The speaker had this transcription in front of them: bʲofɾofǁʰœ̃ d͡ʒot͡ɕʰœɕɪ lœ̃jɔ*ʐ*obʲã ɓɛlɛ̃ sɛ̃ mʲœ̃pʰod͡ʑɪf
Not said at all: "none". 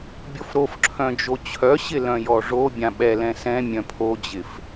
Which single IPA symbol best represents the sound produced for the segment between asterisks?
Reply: ʐ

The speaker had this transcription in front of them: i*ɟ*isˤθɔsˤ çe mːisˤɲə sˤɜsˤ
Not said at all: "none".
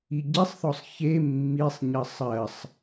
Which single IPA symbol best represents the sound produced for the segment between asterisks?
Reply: ɟ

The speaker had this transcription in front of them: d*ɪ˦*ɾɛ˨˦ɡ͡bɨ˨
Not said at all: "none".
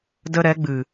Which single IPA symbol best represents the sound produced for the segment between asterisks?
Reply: ə˦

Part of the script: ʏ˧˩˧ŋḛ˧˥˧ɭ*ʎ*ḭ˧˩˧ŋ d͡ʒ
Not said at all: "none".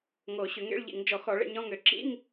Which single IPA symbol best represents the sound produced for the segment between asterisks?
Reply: ʎ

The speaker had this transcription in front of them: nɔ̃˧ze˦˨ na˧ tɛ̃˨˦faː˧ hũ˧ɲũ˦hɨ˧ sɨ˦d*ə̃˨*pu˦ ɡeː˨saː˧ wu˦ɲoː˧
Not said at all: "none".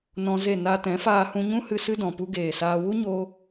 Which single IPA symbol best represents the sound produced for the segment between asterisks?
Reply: ɔ̃˨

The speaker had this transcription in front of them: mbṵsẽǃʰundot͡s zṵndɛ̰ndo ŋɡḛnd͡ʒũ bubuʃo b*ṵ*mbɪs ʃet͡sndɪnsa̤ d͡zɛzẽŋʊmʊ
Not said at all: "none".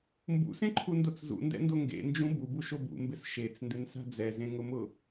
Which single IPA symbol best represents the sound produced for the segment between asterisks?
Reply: ṵ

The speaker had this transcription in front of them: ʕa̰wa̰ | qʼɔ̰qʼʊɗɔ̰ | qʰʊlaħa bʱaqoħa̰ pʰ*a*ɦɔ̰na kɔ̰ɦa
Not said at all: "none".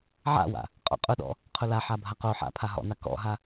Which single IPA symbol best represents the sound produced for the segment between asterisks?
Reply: a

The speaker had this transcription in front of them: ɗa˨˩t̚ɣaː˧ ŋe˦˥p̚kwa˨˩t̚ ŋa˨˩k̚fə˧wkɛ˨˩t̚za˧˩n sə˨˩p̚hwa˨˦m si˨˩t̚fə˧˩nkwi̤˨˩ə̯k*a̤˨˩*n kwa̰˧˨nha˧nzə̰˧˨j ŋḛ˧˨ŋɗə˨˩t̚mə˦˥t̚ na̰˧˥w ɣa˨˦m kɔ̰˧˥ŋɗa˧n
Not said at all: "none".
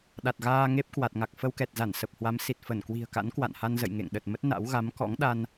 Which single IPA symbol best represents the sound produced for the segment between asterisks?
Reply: a̰˧˥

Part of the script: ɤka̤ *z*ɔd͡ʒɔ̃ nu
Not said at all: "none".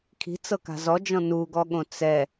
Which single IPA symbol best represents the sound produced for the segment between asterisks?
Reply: z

